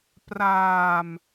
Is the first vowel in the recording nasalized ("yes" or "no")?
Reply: no